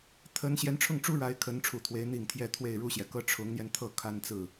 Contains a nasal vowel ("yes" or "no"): no